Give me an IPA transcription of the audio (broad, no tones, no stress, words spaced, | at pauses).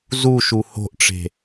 zuʃu ho̤ʔʈ͡ʂe̤